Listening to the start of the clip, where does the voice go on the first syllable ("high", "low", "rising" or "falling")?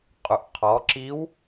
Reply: low